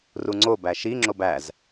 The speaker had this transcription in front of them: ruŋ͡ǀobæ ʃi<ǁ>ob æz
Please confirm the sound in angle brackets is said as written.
no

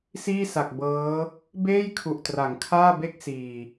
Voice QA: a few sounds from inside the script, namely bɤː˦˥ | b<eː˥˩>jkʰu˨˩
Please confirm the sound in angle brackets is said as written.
yes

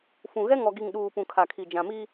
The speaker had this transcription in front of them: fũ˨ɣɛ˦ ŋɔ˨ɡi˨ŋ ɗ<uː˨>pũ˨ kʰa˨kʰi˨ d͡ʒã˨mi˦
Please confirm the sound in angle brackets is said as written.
yes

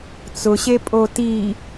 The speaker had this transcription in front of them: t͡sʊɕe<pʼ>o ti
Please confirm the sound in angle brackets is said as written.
yes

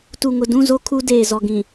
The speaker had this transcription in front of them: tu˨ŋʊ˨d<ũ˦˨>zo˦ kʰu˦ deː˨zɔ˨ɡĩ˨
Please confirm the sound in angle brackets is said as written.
yes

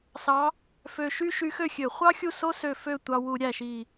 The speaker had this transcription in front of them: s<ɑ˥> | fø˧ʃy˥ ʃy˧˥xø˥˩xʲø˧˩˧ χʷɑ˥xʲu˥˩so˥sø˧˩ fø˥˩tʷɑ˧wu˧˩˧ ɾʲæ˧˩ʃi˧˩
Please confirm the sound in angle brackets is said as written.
no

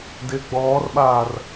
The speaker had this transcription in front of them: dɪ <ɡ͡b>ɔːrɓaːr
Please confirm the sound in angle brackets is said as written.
yes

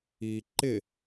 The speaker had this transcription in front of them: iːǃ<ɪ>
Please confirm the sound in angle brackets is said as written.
yes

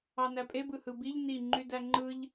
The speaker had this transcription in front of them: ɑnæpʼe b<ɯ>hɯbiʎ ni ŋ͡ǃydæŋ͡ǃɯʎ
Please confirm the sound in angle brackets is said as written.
yes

